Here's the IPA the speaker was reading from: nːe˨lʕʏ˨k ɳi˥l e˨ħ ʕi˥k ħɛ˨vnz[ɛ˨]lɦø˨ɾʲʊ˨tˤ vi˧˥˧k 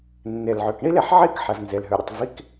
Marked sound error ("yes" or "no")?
yes